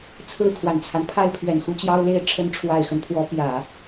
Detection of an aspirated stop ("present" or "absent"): present